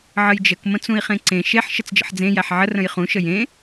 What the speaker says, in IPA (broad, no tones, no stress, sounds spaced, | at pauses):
ʕ ə j d͡ʒ ə k m ə̃ t͡s ũ i̯ χ ẽ ǀ ẽ ʃ e ħ ʃ ə t͡s d͡ʒ ə̰ ħ d͡z ẽ j æ ħ ʕ ə r ə̃ j χ ũ ʃ ə j ẽ